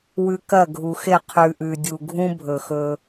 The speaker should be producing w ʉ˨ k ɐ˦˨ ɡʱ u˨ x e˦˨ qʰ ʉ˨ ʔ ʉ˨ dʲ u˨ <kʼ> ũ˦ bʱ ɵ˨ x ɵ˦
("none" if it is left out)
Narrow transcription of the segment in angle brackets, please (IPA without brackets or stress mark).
ɡʱ